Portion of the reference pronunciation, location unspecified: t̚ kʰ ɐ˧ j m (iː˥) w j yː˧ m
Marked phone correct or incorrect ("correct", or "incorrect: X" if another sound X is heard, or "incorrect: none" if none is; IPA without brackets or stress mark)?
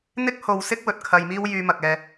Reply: correct